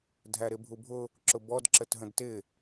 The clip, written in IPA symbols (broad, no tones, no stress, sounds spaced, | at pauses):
dʱ æ ɾ ɪ bʱ u bʱ ʊ | ǁ ʊ b ɔ d ǁ ə t ɦ ə̃ d t ɪ